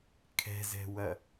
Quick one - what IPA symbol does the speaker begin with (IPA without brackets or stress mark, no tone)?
kʰ